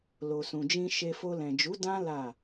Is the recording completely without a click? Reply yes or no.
yes